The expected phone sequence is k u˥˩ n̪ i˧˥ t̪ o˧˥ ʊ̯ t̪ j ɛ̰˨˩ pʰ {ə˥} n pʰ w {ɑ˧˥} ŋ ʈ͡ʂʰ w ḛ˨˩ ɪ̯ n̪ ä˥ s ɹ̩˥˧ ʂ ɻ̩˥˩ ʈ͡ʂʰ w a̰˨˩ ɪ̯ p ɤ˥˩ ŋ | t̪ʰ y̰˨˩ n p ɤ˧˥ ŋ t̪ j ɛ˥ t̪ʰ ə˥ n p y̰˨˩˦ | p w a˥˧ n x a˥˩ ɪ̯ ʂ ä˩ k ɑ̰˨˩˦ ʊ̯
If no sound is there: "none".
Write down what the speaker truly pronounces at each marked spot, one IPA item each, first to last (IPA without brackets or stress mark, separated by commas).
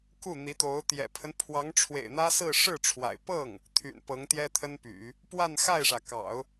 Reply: ə˦, ɑ˧˥